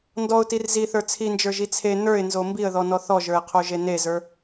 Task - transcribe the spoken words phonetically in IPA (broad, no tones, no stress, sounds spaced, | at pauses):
n d ɔ ʊ̯ t i r z i θ ə˞ t͡sʰ i n d͡ʒ ə˞ ʒ i t͡sʰ e n ə˞ ɪ̯ n z o m b i ə̯ ð ɔ n ɔ θ ɔ ʒ ə˞ ɪ̯ qʰ o ʒ e n e z ə˞